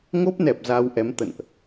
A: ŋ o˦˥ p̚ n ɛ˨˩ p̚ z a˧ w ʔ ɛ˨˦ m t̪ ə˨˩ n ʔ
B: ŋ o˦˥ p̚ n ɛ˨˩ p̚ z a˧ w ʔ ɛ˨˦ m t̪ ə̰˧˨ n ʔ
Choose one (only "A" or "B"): B